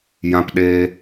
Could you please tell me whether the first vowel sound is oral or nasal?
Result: nasal